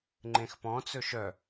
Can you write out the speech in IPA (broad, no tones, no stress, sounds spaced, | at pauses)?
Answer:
ŋ͡ǃ ẽ x p ɔ̃ t͡s ɵ ʃ œ